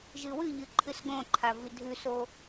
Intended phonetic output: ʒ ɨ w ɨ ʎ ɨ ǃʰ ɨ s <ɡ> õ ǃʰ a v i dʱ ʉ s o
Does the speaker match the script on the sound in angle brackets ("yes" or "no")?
yes